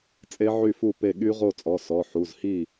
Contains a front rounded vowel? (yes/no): yes